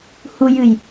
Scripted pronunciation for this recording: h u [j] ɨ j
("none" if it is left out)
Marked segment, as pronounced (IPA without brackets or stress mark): j